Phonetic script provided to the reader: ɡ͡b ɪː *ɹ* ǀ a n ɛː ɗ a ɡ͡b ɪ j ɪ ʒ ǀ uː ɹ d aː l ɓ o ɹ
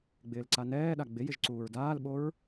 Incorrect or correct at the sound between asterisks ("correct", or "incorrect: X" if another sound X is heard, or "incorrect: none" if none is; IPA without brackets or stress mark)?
incorrect: l